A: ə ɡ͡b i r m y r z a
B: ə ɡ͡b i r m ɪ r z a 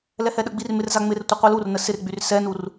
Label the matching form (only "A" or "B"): B